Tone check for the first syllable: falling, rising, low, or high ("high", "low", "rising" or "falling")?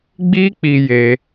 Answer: high